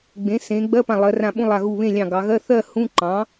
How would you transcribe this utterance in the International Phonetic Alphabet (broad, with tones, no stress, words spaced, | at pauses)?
ɡ͡bẽ˩˥ sẽ˩˧ ɡ͡bɜ˧˥˧pã˧˩lˠɜ˩˧ rã˧˩ɓũ˧˥˧ lˠa˧˩ɣu˧˩βẽ˥˨lʲɑ̃˧˩ ɡɑ˩˧ɣɜ˧˥˧ θɜ˥˨ hũ˧˥˧ ǃɑ̃˩˥